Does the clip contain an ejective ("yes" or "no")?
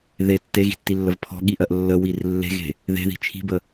no